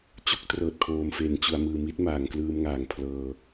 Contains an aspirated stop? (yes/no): yes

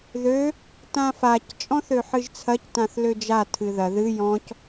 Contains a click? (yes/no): no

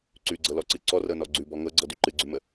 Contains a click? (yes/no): yes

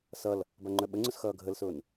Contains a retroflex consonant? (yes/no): no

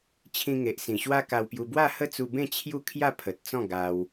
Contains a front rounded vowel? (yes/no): no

